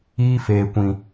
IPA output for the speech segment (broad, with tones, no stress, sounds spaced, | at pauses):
iː˧ f eː˨ kʷ ĩ˨